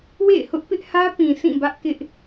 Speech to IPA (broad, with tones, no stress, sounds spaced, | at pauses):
w ḛ˦˨ ɪ̯ h ʊ˦ ʔ p ɪ˦ ʔ h ä˦ p ĩ˨ sʰ ĩ˦˨ b ä˦ ʔ k ɪ˦ ʔ